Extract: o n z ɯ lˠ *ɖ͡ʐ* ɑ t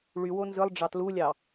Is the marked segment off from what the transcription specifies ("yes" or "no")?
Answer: no